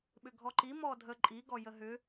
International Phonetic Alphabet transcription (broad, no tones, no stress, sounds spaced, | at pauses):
ɓ ʏ ɡʱ ɔ ǃ i m ɔ dʱ ə ǃʼ i ɡ ɔ j ə ɦ ʏ